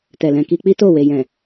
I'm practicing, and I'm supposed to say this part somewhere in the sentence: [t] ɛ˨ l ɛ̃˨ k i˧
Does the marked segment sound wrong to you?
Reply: no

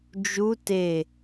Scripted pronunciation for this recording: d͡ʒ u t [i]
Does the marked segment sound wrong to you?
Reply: yes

